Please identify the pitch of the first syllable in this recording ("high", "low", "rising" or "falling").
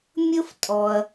high